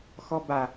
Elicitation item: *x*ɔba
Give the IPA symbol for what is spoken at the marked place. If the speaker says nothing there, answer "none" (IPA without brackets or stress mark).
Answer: x